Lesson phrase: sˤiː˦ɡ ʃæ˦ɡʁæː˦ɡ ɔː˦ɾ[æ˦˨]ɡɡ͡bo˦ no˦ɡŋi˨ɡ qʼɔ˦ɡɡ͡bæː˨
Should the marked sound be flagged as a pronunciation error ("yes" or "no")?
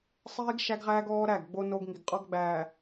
no